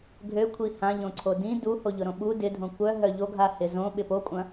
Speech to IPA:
ɡʱ ø kʷʰ i h ã ʎ õ ǀʰ o d ĩ d u h o ʎ ʊ ɾ õ ɓ u d ɪ dʱ õ kʷ œ ɦ œ ʎ o ɡʱ a h ɪ z õ ɓ ɪ p o kʷʼ ɐ̃

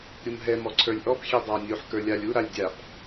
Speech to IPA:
ɾʲ u m ɦ ɛ m ɔ ǀʰ ə˞ lʲ ʔ ɔ p xʲ ɛ dˤ a nʲ u ħ k ə˞ lʲ a lʲ u ɾ a lʲ dʲ a p

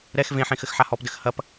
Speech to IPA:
ɾ ɛ x v ẽ ħ ẽ x ɘ x ħ a h ɔ p d ɘ x h ɐ p

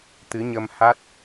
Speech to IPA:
t̪ ɨ˨˦ ɲ ə˧ m h a˦˥ t̚

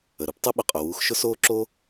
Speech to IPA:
ə˩ ɾ u˥ p tˤ ʊ˥ ɓ ʊ˩ qʼ ʊ˩ w uː˧ x ʃ ʊ˥ s oː˥ ǁ oː˥

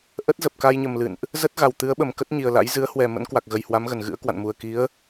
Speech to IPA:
ʔ ə˦˥ t̚ z ə˨˩ p̚ k a˧ j ɲ ə˨˩ m l ɨ̰˧˨ n ʔ | z ə˦˥ t̚ ɣ a˨˩ w t̪ ɨ˨˦ ə̯ ɓ ə˨˩ m k ə˦˥ t̚ ɲ i˨˩ ə̯ l a̰˧˥ j z ɨ˨˦ ə̯ h w ɛ˨˩ m ə̰˧˥ n k w a˨˩ k̚ ɣ ə˨˩ j h w a˨˦ m ɣ ə˨˩ n ɣ ɨ̰˧˥ ə̯ k w a̰˧˨ n m u˨˩ ə̯ k i˨˦ ə̯

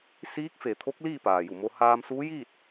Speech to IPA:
s iː˧˥ k̚ f e˩ t̪ʰ o˧˥ k̚ l iː˥˨ p aː˩ j u˧˩ m o˧ h aː˧ m s uː˧˥ j iː˥˨ t̚

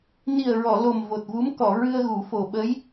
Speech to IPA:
n i˨˩ ə̯ ɹ ɔ˨˩˨ l o˨˩ m v o˨˩ t̚ v u˧˥ m k ɔ˨˩˨ ɹ ɨ˧ ə̯ ɣ u˨˩˦ f o˨˩ ɓ ə˧˥ j

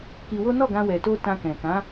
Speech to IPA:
k i˧ w o˦ n ɔ˦˨ ɡ ã˧ w ɛ˨ t o˧ t ã˧ k ɛ̃˨ k ã˨˦

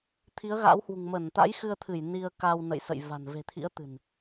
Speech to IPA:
t̪ʰ i˨˦ ə̯ ɣ a̰ː˧˥ w h w ṳ˨˩ ŋ m ə˧˩ n t̪ a̰˧˥ j x ɨ˧ ə̯ t̪ʰ ɨ˧˩ j n i˧ ə̯ k a˧ w n ə̰˧˨ j s ə̰˧˨ j v a̤˨˩ n v e̤˨˩ t̪ʰ ḭ˧˥ ə̯ t̪ ɨ̤˨˩ n

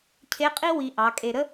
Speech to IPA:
cʰ e˧˥ qʼ i˥ w i˧ ʔ ɑ˩˧ kʼ e˧ ɾ ə˥

